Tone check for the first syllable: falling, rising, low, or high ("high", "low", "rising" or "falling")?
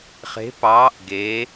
rising